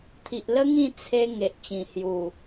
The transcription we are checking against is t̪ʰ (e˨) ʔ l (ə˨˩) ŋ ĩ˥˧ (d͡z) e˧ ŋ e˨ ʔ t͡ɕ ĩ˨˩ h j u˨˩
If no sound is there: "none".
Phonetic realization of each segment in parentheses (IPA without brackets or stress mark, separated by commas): i˨, ə˦, t͡sʰ